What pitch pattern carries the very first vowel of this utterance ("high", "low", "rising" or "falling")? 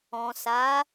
low